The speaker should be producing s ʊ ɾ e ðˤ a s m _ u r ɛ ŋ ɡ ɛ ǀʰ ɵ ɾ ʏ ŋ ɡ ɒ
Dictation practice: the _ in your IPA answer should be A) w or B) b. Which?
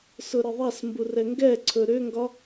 B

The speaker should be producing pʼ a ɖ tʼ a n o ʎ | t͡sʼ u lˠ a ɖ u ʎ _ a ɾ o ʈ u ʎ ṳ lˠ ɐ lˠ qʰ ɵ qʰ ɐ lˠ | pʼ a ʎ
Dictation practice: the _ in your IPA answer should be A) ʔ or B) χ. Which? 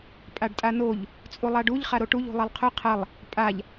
B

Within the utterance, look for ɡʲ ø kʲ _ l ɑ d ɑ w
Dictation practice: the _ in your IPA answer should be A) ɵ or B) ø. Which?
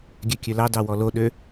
B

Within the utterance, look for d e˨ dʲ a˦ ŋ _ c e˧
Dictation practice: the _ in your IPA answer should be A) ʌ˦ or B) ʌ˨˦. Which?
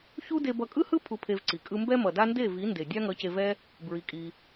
B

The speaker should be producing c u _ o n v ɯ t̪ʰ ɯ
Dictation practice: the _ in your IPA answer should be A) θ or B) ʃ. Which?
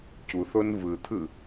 A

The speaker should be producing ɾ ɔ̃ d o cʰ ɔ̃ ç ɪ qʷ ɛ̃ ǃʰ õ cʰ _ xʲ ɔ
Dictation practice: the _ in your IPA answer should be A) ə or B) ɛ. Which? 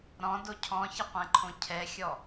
B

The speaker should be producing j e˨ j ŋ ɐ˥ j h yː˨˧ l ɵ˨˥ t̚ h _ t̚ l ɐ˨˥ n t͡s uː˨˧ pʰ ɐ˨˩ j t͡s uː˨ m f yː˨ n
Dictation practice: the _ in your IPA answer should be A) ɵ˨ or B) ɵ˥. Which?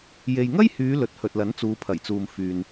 A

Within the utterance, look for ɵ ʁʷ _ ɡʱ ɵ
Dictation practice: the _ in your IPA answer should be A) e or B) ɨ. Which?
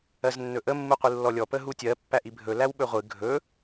B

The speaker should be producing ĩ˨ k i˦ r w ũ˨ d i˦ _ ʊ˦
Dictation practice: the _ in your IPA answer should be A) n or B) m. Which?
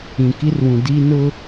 A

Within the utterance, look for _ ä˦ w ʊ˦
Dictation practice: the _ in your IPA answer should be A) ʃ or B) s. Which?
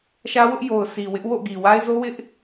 A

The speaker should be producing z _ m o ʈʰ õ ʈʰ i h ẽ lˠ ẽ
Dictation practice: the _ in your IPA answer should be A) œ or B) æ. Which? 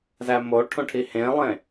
B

